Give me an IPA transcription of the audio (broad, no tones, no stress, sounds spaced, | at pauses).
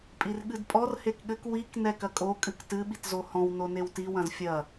pʼ i r ɠ ɨ d pʼ ɔ r h e k ɠ ɘ k w i k n ɛ k ɐ kʼ o kʼ ɨ k t ɨ ɓ i t z o h ɔ̃ w n o n e w t i w ɐ̃ z fʲ ɐ